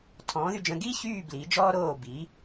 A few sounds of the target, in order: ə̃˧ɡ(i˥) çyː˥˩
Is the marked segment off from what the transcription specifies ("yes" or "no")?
yes